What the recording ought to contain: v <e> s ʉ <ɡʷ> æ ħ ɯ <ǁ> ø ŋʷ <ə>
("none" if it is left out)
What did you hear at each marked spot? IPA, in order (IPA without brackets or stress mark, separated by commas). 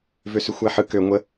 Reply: ø, xʷ, k, ə